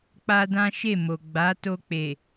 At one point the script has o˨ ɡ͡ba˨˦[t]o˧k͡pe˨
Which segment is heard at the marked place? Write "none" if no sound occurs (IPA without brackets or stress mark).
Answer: t